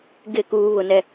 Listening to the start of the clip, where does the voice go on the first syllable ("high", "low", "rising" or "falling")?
falling